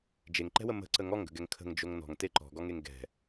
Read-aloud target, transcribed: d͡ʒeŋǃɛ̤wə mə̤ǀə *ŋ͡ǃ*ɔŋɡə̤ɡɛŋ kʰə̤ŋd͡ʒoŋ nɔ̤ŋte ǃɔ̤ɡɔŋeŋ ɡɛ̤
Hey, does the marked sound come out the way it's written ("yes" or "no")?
no